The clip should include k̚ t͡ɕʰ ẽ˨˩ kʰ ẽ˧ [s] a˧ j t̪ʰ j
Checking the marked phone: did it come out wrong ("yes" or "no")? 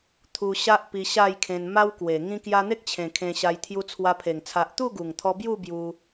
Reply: yes